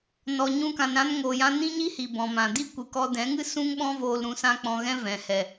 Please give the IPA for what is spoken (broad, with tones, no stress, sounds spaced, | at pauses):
n ɔ˨ ɲ ũ˧ k ã˨ n ɾ ã˧ n ŋ oː˨ j ã˧ n ĩ˦ ɲ i˦ h i˨ b ɔ̃˨ m ã˨ d i˦ kʷ ɨ˨ k ɔ˧ d ɛ̃˨˦ ŋ ɨ˦ s ũ˦ ŋ ɓ ɔ̃˦ v oː˧ l ɾ ũ˨˦ s ã˦ k͡p ɔ̃˧ ɣ ɛ̃˦ v ɛ̃˨ h ɛ˨